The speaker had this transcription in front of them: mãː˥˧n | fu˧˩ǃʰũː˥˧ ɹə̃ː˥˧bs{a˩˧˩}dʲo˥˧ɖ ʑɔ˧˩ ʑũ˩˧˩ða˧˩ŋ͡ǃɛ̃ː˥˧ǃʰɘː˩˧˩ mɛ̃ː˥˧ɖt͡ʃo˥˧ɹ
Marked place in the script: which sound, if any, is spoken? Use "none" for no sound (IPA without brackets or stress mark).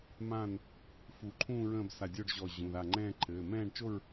a˧˩